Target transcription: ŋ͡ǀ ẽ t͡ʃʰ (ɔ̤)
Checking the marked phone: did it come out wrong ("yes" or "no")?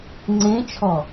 yes